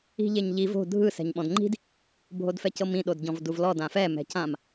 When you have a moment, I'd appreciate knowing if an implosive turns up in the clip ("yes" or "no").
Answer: yes